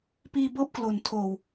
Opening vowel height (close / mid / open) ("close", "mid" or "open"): close